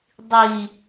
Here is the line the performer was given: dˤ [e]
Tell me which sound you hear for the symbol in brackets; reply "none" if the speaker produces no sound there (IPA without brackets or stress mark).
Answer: i